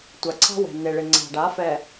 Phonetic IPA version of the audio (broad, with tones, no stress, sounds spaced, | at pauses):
tʷ a˨ ǀʰ a̤˦ w ɛ̤˨ nː e˨ ɭ ɪ˨ ŋ͡ǀ a̤˨ ɖ a˨˦ f ɛ˨